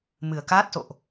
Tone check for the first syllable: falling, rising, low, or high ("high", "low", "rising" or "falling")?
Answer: low